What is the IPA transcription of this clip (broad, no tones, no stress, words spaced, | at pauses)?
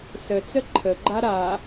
sət͡sə ǃʰəɡ͡ǃa ɾa